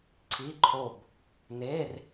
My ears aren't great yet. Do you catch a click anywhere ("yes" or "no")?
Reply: yes